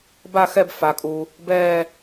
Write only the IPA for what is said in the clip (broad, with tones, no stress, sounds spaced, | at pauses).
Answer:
b a˦˨ x ɛ˦˨ b f a˩ kʼ u˩ | b ɛː˦˨